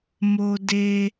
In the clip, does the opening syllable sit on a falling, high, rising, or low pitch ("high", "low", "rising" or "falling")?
high